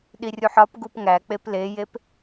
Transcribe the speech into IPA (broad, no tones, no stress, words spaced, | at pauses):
ɗirʲuħɒpɡup ŋæk͡pep lejep